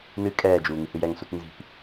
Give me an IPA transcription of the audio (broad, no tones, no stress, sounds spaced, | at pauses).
n ɨ kʼ ɛː d͡ʒ uː ŋ ɨ h ɨ j ɛ ŋ s u t n z i̤ p